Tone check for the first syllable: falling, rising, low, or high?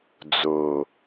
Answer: low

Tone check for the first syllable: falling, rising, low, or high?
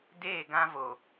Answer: falling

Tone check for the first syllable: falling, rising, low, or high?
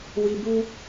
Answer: low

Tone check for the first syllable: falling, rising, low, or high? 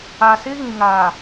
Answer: low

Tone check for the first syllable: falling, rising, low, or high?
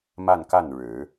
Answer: falling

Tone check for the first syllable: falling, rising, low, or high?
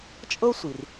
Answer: high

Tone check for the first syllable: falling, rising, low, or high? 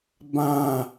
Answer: high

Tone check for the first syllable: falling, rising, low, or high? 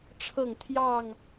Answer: falling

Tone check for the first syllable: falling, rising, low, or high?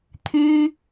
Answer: high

